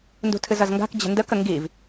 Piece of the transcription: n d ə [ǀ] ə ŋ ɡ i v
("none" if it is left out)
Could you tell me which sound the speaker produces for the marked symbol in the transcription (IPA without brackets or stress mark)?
k